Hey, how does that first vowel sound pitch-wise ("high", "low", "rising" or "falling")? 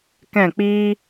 falling